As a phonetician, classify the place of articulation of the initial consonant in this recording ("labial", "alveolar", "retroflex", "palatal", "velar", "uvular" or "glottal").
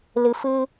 alveolar